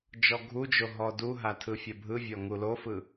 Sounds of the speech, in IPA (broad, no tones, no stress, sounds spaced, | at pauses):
d͡ʒ ɔ ɡʱ u d͡ʒ o ɦ ɔ d u ɦ a tʰ ɯ fʲ ɐ bʱ ɯ vʲ ɔ ŋ u l o f ɯ